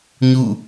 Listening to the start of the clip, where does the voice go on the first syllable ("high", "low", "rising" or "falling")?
falling